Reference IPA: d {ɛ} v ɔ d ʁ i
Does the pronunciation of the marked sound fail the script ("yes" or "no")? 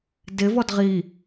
yes